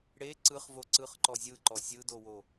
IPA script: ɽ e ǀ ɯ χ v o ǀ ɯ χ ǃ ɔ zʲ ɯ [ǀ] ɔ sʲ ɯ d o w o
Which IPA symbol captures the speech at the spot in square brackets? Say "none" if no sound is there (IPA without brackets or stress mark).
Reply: ǃ